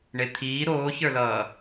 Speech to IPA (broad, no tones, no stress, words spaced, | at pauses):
ɳet̪ʰiː ɾoːçə˞lʌː